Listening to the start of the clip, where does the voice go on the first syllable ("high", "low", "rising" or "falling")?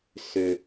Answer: low